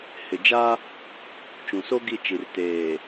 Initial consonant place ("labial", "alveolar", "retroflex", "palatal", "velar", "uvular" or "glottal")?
glottal